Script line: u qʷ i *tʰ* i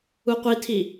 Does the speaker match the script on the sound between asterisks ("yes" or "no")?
yes